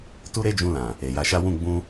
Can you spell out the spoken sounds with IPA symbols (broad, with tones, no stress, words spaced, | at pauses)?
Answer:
tu˦ɾe˦d͡ʒũ˧lã˨ | e˨ja˨˦ʃa˦ wũ˦˨ɡ͡bũ˧